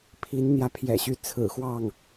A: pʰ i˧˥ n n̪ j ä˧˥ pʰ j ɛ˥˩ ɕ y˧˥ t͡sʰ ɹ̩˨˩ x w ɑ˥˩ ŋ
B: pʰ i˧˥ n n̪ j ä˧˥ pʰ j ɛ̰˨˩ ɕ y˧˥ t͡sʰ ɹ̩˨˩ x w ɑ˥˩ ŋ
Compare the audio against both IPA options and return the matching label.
B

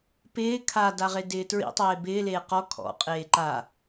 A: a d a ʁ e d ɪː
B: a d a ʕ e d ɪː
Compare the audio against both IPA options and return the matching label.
A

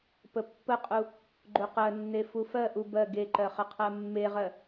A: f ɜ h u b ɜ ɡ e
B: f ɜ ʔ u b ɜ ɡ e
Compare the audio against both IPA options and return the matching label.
B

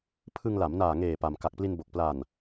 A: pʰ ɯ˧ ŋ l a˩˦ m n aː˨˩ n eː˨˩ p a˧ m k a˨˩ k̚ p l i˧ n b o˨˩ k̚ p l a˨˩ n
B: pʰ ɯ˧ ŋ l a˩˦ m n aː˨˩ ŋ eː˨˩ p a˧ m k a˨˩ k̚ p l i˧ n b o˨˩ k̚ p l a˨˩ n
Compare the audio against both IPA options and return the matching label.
B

